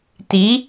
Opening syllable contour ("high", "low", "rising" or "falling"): rising